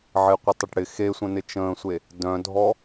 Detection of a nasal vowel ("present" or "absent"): present